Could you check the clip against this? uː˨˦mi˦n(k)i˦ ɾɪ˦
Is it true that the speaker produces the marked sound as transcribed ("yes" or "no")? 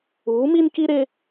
yes